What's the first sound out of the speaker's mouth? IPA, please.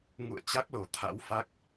ŋ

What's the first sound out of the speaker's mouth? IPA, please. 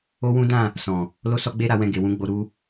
o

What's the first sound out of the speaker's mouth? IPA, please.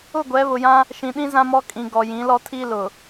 ʊ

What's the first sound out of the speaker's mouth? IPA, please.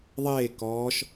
ðˤ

